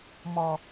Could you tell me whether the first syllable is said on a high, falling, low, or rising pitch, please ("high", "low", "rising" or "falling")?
low